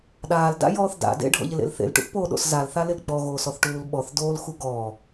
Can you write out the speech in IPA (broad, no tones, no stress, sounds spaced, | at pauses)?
ɗ aː l d a̰ j ɔː θ d a̰ d ḛ ɖʱ ɔ̰ ʎ ɪ l ḛ l θ ḛ l ʈ ṵ θ p oː ɗ o̰ s z a l θ a l ɪ l ɡ͡b ɔ ɣ oː s ɔ θ ʈ uː l ɓ ɔ θ d oː l x u ɡ ɔː